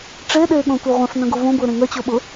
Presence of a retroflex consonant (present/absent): present